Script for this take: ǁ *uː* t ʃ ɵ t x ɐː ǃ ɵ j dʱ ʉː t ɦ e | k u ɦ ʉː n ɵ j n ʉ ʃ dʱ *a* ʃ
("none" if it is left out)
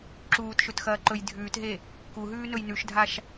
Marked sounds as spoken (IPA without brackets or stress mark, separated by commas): uː, a